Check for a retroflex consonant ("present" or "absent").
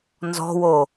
absent